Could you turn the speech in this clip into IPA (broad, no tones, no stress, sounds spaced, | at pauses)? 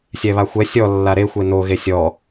sʲ ɛ β a xʷ ɛ sʲ ɔ lː a ɾ e xʷ e n o ɣ e sʲ ɔ